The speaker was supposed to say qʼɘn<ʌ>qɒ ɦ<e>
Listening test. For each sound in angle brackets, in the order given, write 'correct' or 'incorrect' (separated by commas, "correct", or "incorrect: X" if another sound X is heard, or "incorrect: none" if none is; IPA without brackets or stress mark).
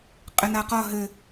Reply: incorrect: a, incorrect: ɘ